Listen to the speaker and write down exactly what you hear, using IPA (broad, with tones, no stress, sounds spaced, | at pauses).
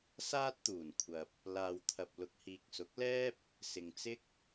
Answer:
s aː˥ t̚ t̪ uː˨˩ n kʷʰ ɐ˨ p̚ | l aː˨ w t̪ʰ ɐ˨ p̚ l ʊ˨ k̚ h iː˨ k̚ s ʊ˨˥ k̚ l ɛː˥ p̚ | s ɪ˨ ŋ t͡s ɪ˥ k̚